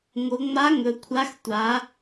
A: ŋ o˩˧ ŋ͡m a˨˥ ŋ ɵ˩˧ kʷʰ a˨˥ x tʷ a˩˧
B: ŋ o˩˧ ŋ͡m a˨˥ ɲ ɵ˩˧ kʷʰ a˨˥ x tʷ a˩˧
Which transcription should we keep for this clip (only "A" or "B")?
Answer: A